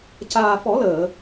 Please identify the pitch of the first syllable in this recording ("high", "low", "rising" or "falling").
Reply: low